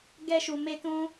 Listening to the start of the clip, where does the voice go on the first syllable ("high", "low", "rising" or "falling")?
high